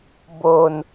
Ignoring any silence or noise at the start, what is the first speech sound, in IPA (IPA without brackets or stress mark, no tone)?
b